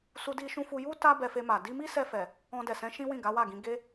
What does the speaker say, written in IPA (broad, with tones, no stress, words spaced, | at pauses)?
su˧di˧ʃũ˧fu˧ ju˦ ta˦ bɛ˧fe˧ma˨ di˧mi˦sɛ˧fɛ˨ | ɔ̃˧dɛ˨sɛ̃˨˦ ʃĩ˦wĩ˦˨ɡa˨˦ wa˦˨ɡĩ˧ ɡe˦